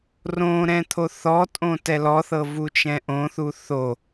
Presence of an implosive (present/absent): absent